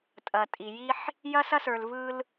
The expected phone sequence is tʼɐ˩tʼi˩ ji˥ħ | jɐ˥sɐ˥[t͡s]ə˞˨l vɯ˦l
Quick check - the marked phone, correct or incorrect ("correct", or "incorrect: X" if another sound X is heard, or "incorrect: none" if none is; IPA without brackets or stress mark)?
incorrect: s